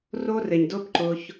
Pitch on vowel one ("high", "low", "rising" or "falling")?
high